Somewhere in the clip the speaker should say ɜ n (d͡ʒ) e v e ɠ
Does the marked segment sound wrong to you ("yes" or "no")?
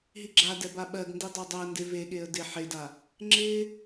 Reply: yes